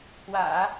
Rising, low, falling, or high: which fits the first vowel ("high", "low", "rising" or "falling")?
low